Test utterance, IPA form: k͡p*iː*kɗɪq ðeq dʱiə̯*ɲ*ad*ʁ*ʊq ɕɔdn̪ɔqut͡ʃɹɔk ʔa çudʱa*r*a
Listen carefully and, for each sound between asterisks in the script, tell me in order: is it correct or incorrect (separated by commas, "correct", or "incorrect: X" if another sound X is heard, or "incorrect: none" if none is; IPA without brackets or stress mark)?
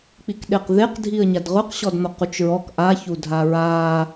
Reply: incorrect: i, correct, correct, incorrect: ɹ